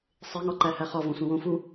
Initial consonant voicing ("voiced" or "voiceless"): voiceless